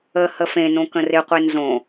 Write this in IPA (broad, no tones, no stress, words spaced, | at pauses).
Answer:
ə həfẽnõ kə̃rɪqʷe nzõ